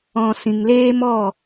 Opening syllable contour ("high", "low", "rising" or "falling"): low